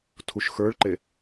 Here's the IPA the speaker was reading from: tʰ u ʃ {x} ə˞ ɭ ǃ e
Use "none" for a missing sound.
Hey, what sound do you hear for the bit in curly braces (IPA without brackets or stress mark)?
x